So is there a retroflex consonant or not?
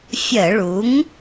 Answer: yes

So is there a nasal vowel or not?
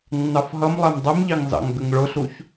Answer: no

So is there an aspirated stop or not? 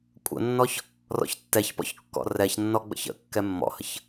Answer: no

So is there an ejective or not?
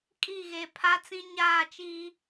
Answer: yes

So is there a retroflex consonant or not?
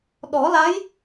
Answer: no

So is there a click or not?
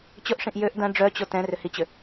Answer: no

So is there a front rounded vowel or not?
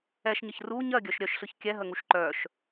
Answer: yes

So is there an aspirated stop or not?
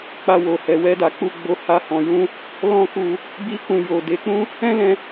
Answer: no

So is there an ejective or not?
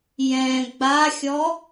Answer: no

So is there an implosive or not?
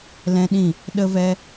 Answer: yes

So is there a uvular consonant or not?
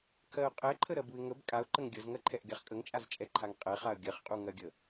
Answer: yes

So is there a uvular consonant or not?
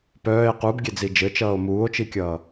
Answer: yes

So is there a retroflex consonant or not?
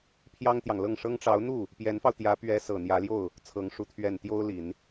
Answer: yes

